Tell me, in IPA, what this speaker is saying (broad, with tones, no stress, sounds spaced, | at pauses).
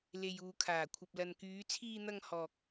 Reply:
l e˨ j uː˨ kʰ aː˨˩ kʷʰ ɐ˨ p̚ l ɐ˨ n k yː˨˧ t͡sʰ iː˧ n̪ ɐ˧ ŋ h ɔː˨ k̚